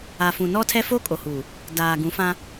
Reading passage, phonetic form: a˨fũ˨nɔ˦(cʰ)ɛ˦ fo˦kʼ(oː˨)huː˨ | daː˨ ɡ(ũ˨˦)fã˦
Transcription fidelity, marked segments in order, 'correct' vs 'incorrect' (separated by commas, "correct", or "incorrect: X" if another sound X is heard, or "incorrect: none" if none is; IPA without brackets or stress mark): incorrect: tʰ, incorrect: o˨, correct